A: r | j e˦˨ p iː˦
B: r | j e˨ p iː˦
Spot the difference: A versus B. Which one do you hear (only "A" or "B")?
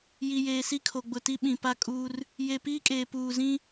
B